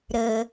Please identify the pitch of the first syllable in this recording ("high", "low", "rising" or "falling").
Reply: low